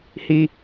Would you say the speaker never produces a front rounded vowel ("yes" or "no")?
yes